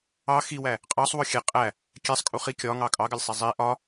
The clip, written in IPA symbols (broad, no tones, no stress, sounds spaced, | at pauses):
ɑ x i w æ | qʼ ɑ sˤ w ʊ xʲ ɛ qʼ æ | kʲ ɛ sˤ kʼ u χ i kʲ ɒ ŋ ɑ kʼ ɑ ɡ ɜ lʲ sˤ i zˤ i ʔ ɒ